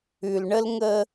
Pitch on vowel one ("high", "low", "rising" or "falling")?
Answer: low